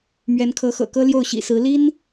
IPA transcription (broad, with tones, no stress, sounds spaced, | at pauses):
m ɥ ɛ˧˥ n kʰ ɤ˧˥ x ɤ̰˨˩ k ɤ˥ l j o˥˩ ʊ̯ ɕ ḭ˨˩ s ɹ̩˧˥ l i˥ n